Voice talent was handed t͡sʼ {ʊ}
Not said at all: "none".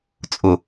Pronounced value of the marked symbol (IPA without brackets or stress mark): ʊ